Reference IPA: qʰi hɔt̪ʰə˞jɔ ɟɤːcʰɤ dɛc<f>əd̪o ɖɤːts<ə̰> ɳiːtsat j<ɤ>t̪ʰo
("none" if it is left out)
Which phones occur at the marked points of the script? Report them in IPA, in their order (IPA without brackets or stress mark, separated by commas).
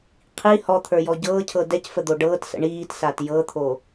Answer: f, ə̰, ɤ